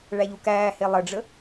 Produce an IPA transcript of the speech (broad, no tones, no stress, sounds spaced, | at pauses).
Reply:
ɭ æ ʎ u k æː h e lˠ ə ɖ͡ʐ ə